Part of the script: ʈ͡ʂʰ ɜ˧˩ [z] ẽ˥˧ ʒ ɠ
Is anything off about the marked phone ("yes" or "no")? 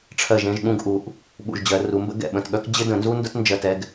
yes